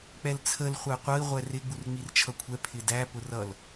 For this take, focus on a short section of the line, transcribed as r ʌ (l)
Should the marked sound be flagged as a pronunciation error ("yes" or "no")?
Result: no